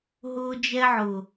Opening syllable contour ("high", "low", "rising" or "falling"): high